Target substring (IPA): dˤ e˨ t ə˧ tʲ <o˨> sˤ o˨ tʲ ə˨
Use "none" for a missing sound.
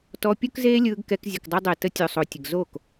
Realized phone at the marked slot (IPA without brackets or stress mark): o˨